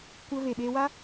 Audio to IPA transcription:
kʷə˧ ve˨ɓe˧wa˦

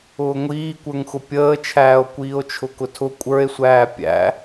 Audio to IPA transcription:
ʊːŋʷiːkʷə˞ŋxʊ pʲəːt͡ʃʰæːo̯ kʷiːo̯t͡ʃʰʊkʊtʰʊ kʷʼə˞e̯sʷæː pʲæ̰

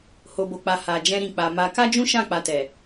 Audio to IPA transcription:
ho˨bo˨k͡pa˨ ha˨ d͡ʒɛ̃˧ɾĩ˨k͡pa˨ ma˧ ka˦d͡ʒũ˦ʃã˦˨ k͡pa˧tɛ˨

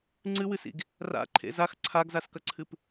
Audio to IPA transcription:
ŋ͡ǀɨwɨsḭɡ | ra̰ǃʰḛ zax ǀʰaɡzaskɐǀʰɨp

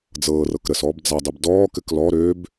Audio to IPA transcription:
d͡zɤːrɤk ɾəs ɔːbd͡zadˤib dɔːkɘk lɔ ɾøb

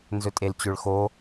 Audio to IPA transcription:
nzɵtʼelt͡ɕøɭxo

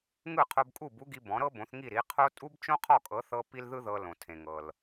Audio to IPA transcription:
ŋɯ˥˩qʰo˧bkʼu˥˩b u˥ɡi˧ bɔ̃˩˥ ɾɤ˥bõ˩˥θŋi˥˩ ɾi˩˥qʰo˥ tʼu˥bt͡ʃõ˥qʰɔ˥˩kʼɤ˩˥θ ɤ˥ pi˥lðɯ˥ðɤ˧ lõ˩tʰẽ˩ŋɤ˩l

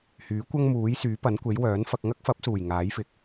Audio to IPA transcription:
hyː˨˥kʷɐ˥ŋmuː˨˥jsyː˨˥ pɐ˨˥nkʷe˨˥j wœː˨˥nfɐ˧k̚ ŋɐ˥k̚fɐ˨˥p̚suː˨˩j ŋaː˨˥jfɪ˨˥k̚

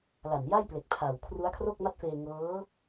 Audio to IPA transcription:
la˨˩n ja˥˩jple˨˩k̚ pʰa˨˩w kʰru˦˥a̯kʰro˥˩k̚ma˥˩t̚feː˧ ŋɤː˦˥

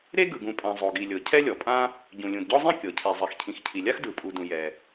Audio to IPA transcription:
ɾe˥ɡɯ˩ɡũ˩pʼã˩ zˤo˩ɡi˩lʲɤ˩ cʰɛ˥lʲɔ˩pʼã˥ | ɟũ˩lʲũ˩dɟɔ˥zˤĩ˥ kʲɤ˩ cʰɛ˩ zˤɛ˩xcʰĩ˩x cʰi˩lʲa˥x dɯ˩pʼu˩dũ˩ jɛ˩

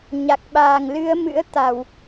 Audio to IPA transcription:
ɲa˨˩k̚ɓaː˨˩ŋ lɨ˨˦ə̯ mɨ̰˧˥ə̯ t̪a˧˩˨w

